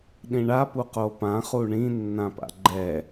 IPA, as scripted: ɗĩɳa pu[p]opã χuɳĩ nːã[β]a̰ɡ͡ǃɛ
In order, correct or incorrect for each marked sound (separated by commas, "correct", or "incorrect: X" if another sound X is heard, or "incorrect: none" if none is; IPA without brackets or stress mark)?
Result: incorrect: q, incorrect: p